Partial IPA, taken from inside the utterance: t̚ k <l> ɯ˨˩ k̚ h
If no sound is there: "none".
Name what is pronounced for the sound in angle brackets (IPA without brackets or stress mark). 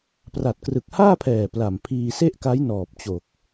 r